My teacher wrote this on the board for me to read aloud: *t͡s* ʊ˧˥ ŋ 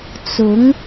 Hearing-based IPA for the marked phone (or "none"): t͡s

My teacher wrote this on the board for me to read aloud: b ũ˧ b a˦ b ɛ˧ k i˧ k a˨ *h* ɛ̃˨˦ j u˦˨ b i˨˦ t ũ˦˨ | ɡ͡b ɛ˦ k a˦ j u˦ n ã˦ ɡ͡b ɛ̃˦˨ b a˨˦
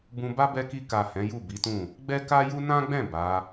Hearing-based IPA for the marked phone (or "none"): h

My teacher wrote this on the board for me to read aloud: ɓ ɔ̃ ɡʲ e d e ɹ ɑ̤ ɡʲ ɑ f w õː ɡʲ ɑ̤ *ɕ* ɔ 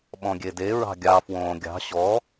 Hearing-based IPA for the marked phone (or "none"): ɕ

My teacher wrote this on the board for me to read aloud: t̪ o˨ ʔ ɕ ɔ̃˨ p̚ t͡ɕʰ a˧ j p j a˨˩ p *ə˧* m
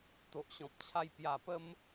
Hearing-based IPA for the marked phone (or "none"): ə˧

